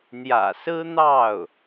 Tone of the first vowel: low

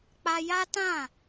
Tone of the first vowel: high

